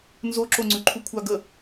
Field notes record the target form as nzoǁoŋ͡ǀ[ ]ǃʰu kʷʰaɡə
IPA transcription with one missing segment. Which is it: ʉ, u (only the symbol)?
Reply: ʉ